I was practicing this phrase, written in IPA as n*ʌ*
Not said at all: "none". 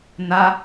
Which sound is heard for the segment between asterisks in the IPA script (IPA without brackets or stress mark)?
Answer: a